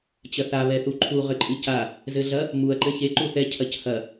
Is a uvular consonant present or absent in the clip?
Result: present